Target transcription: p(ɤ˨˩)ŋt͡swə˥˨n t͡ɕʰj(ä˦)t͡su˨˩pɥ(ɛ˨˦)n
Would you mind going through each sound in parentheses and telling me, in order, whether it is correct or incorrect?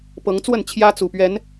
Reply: incorrect, correct, correct

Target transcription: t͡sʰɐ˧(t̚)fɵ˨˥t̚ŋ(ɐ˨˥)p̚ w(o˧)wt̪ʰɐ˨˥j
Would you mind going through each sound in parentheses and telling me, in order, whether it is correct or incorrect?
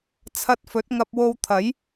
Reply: correct, incorrect, correct

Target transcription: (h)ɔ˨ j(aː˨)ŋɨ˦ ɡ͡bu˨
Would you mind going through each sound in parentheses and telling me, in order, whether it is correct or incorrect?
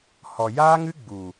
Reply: correct, incorrect

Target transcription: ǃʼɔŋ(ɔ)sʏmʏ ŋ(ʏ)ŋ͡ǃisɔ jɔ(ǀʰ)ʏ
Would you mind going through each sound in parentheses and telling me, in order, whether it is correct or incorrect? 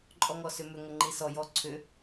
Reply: correct, incorrect, correct

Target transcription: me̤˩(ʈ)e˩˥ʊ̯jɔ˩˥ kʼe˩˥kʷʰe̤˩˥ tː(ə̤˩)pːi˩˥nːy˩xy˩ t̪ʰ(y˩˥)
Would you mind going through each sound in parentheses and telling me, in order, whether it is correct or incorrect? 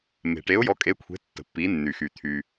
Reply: correct, correct, incorrect

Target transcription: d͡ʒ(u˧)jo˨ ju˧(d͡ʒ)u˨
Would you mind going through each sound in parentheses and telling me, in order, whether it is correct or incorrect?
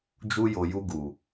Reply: correct, incorrect

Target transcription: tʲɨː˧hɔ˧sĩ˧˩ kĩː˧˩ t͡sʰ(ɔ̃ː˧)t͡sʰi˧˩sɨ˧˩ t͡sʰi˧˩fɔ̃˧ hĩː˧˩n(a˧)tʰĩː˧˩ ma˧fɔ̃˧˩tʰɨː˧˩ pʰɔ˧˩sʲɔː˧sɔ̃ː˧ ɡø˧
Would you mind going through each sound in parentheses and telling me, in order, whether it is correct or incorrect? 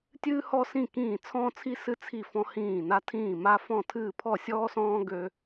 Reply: correct, correct

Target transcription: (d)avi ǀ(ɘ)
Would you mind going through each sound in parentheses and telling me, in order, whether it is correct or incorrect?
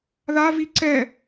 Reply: incorrect, incorrect

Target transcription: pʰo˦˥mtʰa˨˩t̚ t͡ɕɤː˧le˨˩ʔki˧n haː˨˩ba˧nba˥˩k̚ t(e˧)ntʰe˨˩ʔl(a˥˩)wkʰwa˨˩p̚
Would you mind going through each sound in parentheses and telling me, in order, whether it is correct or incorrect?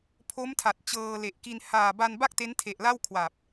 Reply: incorrect, correct

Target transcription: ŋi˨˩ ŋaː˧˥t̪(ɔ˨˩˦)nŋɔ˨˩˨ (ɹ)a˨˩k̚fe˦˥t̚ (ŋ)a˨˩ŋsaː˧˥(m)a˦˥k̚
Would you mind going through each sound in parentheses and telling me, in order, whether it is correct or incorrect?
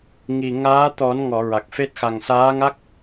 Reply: correct, correct, incorrect, incorrect

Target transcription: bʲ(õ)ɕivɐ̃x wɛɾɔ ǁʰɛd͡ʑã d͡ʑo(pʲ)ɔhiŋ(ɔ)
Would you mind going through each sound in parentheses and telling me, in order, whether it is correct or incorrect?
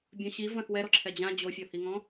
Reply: correct, incorrect, incorrect

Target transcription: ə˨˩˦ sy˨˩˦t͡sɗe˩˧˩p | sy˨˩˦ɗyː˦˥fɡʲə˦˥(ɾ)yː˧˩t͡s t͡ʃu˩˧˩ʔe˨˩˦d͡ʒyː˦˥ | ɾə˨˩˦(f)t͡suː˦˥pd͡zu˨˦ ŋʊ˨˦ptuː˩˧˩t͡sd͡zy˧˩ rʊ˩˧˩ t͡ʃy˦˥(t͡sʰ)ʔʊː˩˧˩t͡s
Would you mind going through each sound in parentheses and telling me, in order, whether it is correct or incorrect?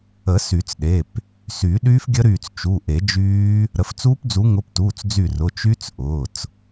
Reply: correct, correct, incorrect

